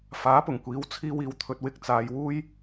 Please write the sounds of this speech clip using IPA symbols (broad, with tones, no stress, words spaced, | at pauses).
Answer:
faː˨˥pʊ˨˩ŋ kʷiː˨˥wt͡sʰiː˧wiː˨w t̪ʰɵ˧t̚wɪ˥k̚t͡saː˨˧j wuː˥j